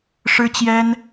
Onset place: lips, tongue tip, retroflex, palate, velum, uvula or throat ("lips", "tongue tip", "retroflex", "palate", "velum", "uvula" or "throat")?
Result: retroflex